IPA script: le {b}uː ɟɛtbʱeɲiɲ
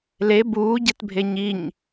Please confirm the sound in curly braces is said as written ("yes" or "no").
yes